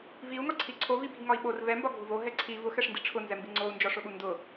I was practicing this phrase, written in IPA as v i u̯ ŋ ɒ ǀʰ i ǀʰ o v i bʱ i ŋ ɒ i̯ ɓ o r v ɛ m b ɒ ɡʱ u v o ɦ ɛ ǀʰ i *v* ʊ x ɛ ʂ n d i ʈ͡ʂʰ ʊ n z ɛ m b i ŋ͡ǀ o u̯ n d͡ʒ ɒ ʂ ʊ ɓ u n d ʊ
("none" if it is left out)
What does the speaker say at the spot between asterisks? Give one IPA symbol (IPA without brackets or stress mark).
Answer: v